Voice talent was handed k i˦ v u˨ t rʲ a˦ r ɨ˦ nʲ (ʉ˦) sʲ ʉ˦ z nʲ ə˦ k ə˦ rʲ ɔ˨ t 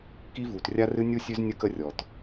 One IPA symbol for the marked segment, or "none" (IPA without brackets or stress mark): u˦